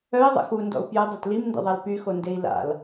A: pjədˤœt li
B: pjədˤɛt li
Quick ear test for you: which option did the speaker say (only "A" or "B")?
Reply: B